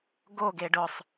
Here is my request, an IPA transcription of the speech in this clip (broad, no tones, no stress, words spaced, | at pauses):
ɡo ɡeɖʊsˤ